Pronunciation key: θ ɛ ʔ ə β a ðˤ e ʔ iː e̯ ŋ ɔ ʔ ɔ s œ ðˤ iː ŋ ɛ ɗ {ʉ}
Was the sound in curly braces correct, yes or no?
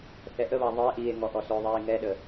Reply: no